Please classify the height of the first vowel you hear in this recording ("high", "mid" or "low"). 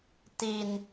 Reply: high